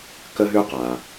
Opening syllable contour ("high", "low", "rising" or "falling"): high